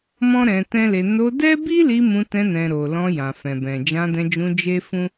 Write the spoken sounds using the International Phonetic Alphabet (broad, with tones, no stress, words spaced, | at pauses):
mɔ̃˦ɾɛ̃˧ tɛ̃˦le˧ no˧dɛ˦bi˦li˧ mũ˧tɛ̃˧nɛ̃˨ ɾo˨ lɔ̃˧jã˨fɛ̃˨bɛ̃˨ d͡ʒã˧dɛ̃˧d͡ʒũ˧ d͡ʒe˦fũ˦